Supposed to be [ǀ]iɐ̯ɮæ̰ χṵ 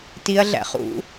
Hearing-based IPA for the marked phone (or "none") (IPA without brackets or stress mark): t